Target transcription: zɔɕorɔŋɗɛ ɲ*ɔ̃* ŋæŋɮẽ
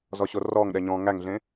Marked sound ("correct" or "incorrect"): correct